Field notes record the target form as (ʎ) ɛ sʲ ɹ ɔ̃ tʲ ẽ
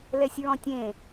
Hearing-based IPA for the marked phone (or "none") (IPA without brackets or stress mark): l